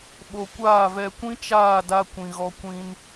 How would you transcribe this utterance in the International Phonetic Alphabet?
ɓ o˧ kʷ aː˦˨ v ɛ˧ kʷ ĩ˦ t͡ʃ aː˦˨ d a˧ kʷ ĩ˨ ɣ ɔ˧ kʷ ĩ˧ n

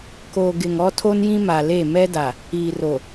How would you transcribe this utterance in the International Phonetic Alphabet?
k o˨ ɡ ɪ˨ ŋ ɔ˦ tʰ o˦ n j ĩ˦ m a˨ l e˦˨ m ɛ˦ d a˨ | iː˨ r o˨

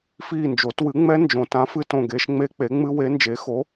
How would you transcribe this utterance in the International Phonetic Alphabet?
f iː˦˨ n d͡ʒ o˨˩˦ t w ɨ˨˥ ŋ͡m ɛ˦˥ n d͡ʒ õ˨˩˦ t ã˨˥ f ɨ˦˥ t õ˦˨ ɡ e˦˥ ʃ ŋ͡m e˦˥ k͡p e˨˥ ŋ͡m ɨ˦˥ w e˨˥ n d͡ʒ e˨˥ x o˨˥

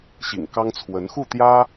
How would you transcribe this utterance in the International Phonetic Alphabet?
ɕ ḭ˨˩ ŋ k ɑ˥ ŋ t͡sʰ w ə˧˥ n x u˥˩ t̪ j ä˥

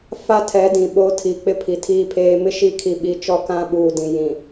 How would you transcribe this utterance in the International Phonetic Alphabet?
f a˦ tʰ ɛ˨˦ d ĩ˨ ɓ o˦ tʰ i˨ k͡p ɪ˦ pʰ i˨ tʰ iː˦ pʰ eː˦ m ɪ˦ ʃ i˦˨ kʰ i˨ ɓ i˨˦ t͡ʃ ɔ˦˨ k ã˦ ɓ uː˨ d ĩ˨ j ĩ˨

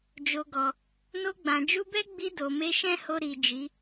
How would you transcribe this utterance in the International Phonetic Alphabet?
d͡ʒ o˨ ɡ ɔ˨ | n o˧ ɡ͡b ã˨ d͡ʒ u˧ b ɛ˦ ɡ͡b i˧ d o˨ m e˧ ʃ ɛ̃˦ h o˧ ɾ i˨ d͡ʒ i˨˦

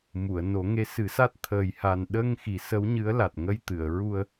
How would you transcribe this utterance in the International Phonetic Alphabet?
m u˨˩˨ ə̯ n o˨˩˦ ŋ e˧˥ s ɨ˨˩˦ s a˦˥ t̚ t̪ʰ əː˨˩ j h a˨˩ n ɗ ə˧ ŋ x i˨˩˦ s ə˧˥ w ɲ ɨ˧˥ ə̯ l a˨˩ t̚ ŋ ə˧ j t̪ ɨ˨˩˨ ə̯ ɹ u˧ ə̯

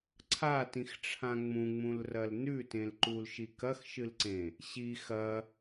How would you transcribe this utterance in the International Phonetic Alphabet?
ǀʰ a t ĩ x ʈ͡ʂʰ ã ŋ͡m ũ ŋ͡m ũ l r ɐ l n ʉ t ẽ l ǃ u l ʃ i k ɐ x ʃ ɨ l ǀ ẽ | ɕ i x ɐ

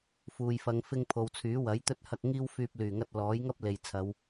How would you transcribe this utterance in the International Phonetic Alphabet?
f uː˨ j f ɐ˨˧ ŋ f ɪ˧ ŋ pʰ o˨ w t͡sʰ yː˨˥ w ɐ˨˥ j t̪ ɵ˥ t̚ h ɐ˧ k̚ ŋ iː˥ w f yː˧ p̚ l yː˨˩ ŋ ɐ˧ t̚ l ɔː˨˥ j ŋ ɐ˥ p̚ l e˨ j t͡sʰ ɐ˨˧ w

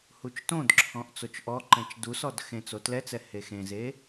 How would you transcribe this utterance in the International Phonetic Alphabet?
h u t͡ʃ t õ d ǁʰ ɔ̃ ʔ t͡s o t͡ʃ ʔ ɔ ǃ ɛ̃ t͡ʃ d u s ɔ d x ẽ t͡s o t l ɛ t͡s ɛ h e x ẽ z e

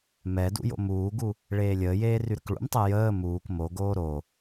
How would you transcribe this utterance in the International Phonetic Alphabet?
m ɛ d ṵ j o̰ m uː ɡ u | ɭ eː lʲ əː j eː r y ɾ ə k ɭ ṵ m tˤ e j əː m uː k m o ɡ oː ɾ o

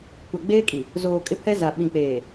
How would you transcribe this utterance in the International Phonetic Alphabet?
kʷ a˨ ɡ͡b eː˦ kʼ i˨ | z oː˨ kʼ ɪ˦ pʰ ɛ˦ z a˨ ɓ ĩ˨ k͡p eː˨

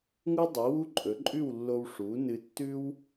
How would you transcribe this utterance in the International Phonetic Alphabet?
ŋ u˥ dˤ ɨ˩˥ w u˥ ǃʼ ɵ˩˥ ǃʼ ʉ˥˩ w lː o˧ w ʂ u˩˥ n ɨ˧ tː ʉ˥ w

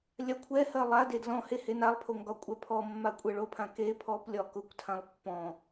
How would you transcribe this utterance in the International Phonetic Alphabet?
lʲ a kʷʰ ɛ h ɜ lˠ a d e d l ɔ̃ h e h e n a lˠ pʰ o ŋ ɡ ɒ kʷʼ ɛ pʰ ɔ mː a kʷʼ ɜ ɭ o pʰ ã k e pʰ ɔ p lʲ ɒ k ʊ kʷ tʰ ã lˠ pː ɔ̃

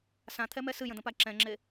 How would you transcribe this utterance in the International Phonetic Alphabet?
s ã t̪ʰ ɛ m ɛ s ɨ j ə̃ d̪ ə̃ p a ǁ ɛ̃ ŋ͡ǁ e

